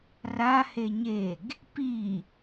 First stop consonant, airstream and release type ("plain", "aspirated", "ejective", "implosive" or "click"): plain